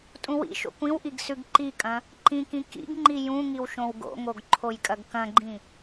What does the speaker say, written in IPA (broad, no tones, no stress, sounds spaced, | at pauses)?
tʼ ũ w ḭ ʃ o̰ kʷ ĩ w ʔ i ɡ s ʉ ɡ ǃ i kʼ ɐ̃ | ǃ ĩ k ĩ k ḭ ɡ ŋ͡ǃ i j ũ ŋ i w ʃ õ w ɡ o̰ ŋ o ɡ ǃʰ o j kʼ ɐ ɡ k ɐ̃ ɡ͡ǃ ĩ